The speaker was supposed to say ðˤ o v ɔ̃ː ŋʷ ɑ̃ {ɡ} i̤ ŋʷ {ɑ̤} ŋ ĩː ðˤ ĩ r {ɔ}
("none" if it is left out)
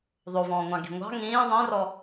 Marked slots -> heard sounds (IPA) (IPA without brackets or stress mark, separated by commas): ɡ, ɑ̤, ɔ